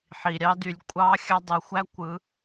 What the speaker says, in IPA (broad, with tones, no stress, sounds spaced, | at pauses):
ħ i˩ ɾʲ ɑ˧˥ d y˩˧ lʲ kʷʼ ɑ˧˥ xʲ ɑ˧˥ dˤ u˩ xʷ æ˥ kʷ ɯ˩˧